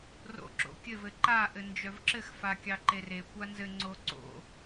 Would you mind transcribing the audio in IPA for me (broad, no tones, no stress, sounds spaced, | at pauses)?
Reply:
r o̰ ǁ o̰ kʲ ɘ v ɘ ǃ a ʔ ɘ n d͡ʒ œ v ǁ ɘ x f a kʲ ɑ ǃ e r e kʷ a n z ɘ ŋ͡ǀ o ǀ o̰